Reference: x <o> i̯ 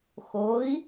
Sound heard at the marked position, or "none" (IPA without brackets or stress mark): o